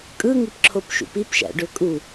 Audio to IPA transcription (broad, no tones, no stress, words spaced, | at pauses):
kʼɯŋipǁʰopʃṵp ipʃæ̰ɖø kʼu